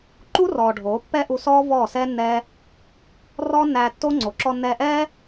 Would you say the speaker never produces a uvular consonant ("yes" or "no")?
yes